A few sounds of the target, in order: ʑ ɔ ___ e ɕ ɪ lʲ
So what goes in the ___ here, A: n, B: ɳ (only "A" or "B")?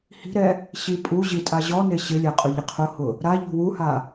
A